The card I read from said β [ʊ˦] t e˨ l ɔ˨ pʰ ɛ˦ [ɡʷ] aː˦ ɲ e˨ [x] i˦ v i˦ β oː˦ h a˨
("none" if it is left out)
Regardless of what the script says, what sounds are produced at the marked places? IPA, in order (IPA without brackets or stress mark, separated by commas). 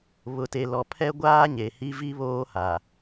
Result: ʊ˨, ɡʷ, h